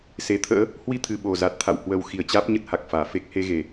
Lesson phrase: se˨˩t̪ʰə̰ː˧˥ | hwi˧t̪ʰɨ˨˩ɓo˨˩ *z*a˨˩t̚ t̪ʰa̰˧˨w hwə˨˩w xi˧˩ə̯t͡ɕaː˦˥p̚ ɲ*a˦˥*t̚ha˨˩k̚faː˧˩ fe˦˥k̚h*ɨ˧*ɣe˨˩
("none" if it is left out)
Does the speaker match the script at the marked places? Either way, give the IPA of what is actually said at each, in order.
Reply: z, ə˦˥, e˧

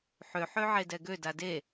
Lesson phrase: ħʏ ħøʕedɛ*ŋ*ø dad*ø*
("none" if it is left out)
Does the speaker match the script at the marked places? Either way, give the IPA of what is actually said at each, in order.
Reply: ɡ, e

